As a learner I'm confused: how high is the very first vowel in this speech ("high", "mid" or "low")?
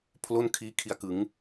mid